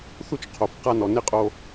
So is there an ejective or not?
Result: yes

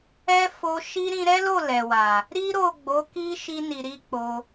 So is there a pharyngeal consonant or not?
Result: no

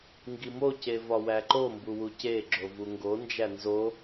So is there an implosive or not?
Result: no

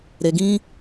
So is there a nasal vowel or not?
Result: yes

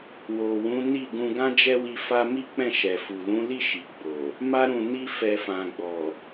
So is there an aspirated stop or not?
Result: no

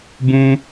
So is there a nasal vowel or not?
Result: yes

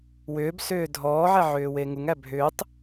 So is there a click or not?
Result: no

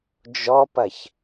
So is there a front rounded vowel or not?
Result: no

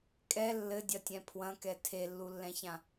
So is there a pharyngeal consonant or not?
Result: no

